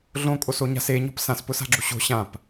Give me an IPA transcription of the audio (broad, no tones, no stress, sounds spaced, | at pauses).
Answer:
ɮ õ kʼ o s o ɲ a̤ s e ɲ ɔ̤ p s ã s p ʊ s a̤ ɡ͡ǁ u ɕ o̤ ɕ ã p